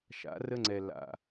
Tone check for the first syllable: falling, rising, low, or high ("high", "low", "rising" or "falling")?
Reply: rising